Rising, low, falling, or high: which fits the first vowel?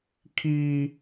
high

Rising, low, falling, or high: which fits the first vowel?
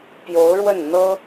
rising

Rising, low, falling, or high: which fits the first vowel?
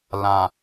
low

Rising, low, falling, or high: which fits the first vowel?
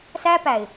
high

